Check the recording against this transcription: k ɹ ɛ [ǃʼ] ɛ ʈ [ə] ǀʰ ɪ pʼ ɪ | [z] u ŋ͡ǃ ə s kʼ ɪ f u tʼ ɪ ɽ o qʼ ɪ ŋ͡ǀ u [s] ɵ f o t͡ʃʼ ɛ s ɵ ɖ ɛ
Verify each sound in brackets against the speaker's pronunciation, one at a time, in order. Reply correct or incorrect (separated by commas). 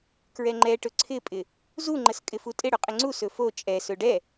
incorrect, incorrect, correct, correct